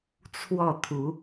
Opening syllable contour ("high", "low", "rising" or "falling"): falling